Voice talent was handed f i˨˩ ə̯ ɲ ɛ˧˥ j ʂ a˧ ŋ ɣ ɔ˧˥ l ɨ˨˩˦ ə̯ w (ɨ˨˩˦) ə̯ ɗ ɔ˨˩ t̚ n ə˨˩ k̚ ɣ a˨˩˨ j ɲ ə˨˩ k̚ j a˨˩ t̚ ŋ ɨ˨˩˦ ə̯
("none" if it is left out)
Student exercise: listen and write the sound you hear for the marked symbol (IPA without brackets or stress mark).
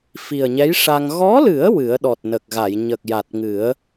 ɨ˨˩˦